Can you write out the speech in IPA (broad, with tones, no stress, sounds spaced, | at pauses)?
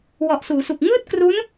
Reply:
w ɔ˨˩ ʔ s uː˩˦ s u˨˩ k̚ ŋ ɯː˥˩ t̚ k r u˦˥ n